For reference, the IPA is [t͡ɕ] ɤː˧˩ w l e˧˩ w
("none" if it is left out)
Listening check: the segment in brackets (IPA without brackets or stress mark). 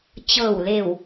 t͡ɕ